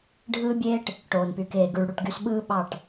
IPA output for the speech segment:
ɖʱ ɯː˦ bʲ eː˦ ʈ | ʈ oː˨ n p y˨ k eː˨ ɡ y˨ ɭ ɽ u˦˨ ʈ ɡ y˦ s ɓ ɯː˦ ɓ ɑ˦˨ ʈ

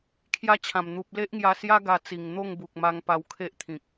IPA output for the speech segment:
kʰ j a˧ t͡ɕʰ ã˨˩ m n̪ u˨ p̚ l e˦ ʔ ŋ j a˧ s j a˦ ɡ a˧ t͡s i˨˩ ŋ n̪ o˥˧ ŋ b u˨ k̚ m a˧ ŋ p a˧ w kʰ e˦ ʔ t̪ʰ ĩ˨ k̚

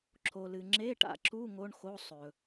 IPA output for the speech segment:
ǁʰ o˨ l ɨ˨ ŋ͡ǁ e˧˥˧ ʈ a̰˨ ǁ u˧˥˧ ŋ o˧˥˧ ɳ x o˧˥˧ sˤ ɵ˨

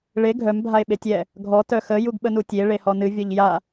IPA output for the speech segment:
ɭ e ɡʱ œ m bʱ a e̯ ɓ e tʲ ɛ | ɡʱ ɔ t œ x ə j u ɡ ɓ ə n u tʲ e ɭ e h ɔ n ɨ vʲ ɔ ʎ j a

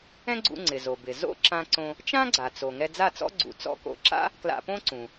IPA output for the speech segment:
ɛ̃˥ ɡ͡ǀ ṵ˧ ŋ͡ǀ ɪ˩ z o˩ b ɪ˩ z o̰˥ ǁ ã˧ ǀ õ˧ | t͡ʃ ã˥ ɡ͡ǀ a˩ t͡s o˩ ŋ ɛ˧ d͡z a˥˩ t͡s ɔ̰˥ ɡ͡ǀ ṵ˩˥ t͡s ɔ̰˧ k o̰˧ ǁ a̰˥ | k l a̰˧ p õ˥ ǀ ũ˩

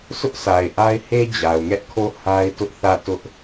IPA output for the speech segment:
s ʊ˦ ʔ s a˨ ɪ̯ ʔ a˦ ɪ̯ h e˦ d͡ʑ a˨ ʊ̯ ŋ ɛ˦ ʔ kʰ o˦˨ h a˦ ɪ̯ t ʊ˦ ʔ θ ä˦˨ t ʊ˦ ʔ

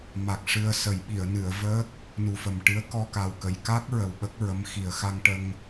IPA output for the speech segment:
m a˨˩ k̚ ʂ ɨ˧ ə̯ s ə˨˩˦ j ɓ i˨˩˨ ə̯ n ɨ˨˩˨ ə̯ v əː˦˥ k̚ | n u˨˩ f ə˨˩ m ʈ ɨ˧˥ ə̯ k ɔ˧ k a˨˩ w k ə˨˩˨ j k a˦˥ k̚ ɹ ə˨˩ w ɓ ə˦˥ k̚ ɹ ə˧˥ m x i˨˩ ə̯ x a˧ ŋ ʈ ə˧ ŋ

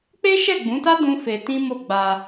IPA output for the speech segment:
k͡p e˦ ʃ ɛ˦˨ ɡ͡b ũ˨˦ t a˦ d ũ˦ f e˧ t ĩ˦ m o˦˨ ɡ͡b a˧

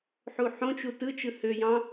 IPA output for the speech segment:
ħ u ħ õ t͡ʃ u t ɯ t͡ʃ ɯ h ø j ɑ̃

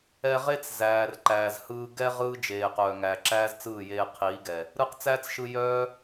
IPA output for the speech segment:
ɛ˧ ʁ e˦ t͡s z æː˨ r ǃ æː˨ z h ɯː˧ ɡ ɛ˦ ʁ ɯː˦ d͡ʒ eː˨ q œː˨ ŋ æː˨ ǁ æː˦ z t͡s ɯː˦˨ j eː˧ qʰ iː˨˦ ɡ ɛ˨ | ɾ ɯ˧ q t͡s æː˦ t͡s ʃ ɯ˧ j œː˦

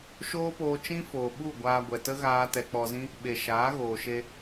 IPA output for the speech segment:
ʃ oː˦ p oː˧ t͡ʃ ĩ˦ f oː˨ ɓ u˦˨ ɡʷ aː˧ ɡʷ ɛ˨ t ə˦ ɣ aː˧ t ɛ˧ k͡p ɔ˧ z ĩ˦ | ɓ e˨ ʃ aː˨˦ ɣ oː˨ ʃ e˧

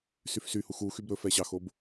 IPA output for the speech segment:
s y f s y h u x u x y b ɾ ɵ f ɛ ɕ ɑ x o b

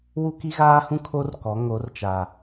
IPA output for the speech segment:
w u˦ k i˦ ɣ aː˦ h ũ˦ kʰ o˦ r k ɔ˨˦ ŋ o˨˦ r t͡ʃ a˨

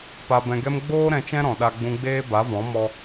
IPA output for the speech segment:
p a˨ b ɛ̃˨ ɡ ɛ˧ m ɡ͡b oː˦ ɾ ɛ̃˧ t͡ʃ ɛ̃˦ ɾ ɔ̃˨ ɗ a˧ ɡ͡b ũ˧ ɡ͡b eː˦ b a˨˦ v ɔ̃˨˦ m ɔ˦

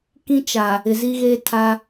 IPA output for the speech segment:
k ĩ˦ t͡ʃ a˨ | ɪ˨ z i˦ ɣ eː˦ tʰ a˦

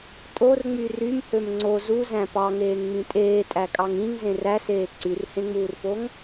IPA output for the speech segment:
tʼ o r ŋ͡m y r y m h ø m ŋ͡ǀ o z u z æ̃ p ɑ ŋ eː ŋ ŋ͡m ĩ tʼ eː tʼ æ kʼ ɑ ŋ ĩ ŋ z ẽ r æ s eː ǀ y r h ẽ ŋ͡m uː r p o ŋ

